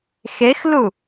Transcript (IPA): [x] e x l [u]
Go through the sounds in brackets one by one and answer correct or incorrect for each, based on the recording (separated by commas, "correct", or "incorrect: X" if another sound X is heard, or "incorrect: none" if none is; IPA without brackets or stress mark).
correct, correct